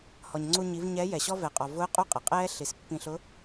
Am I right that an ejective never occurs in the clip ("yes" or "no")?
no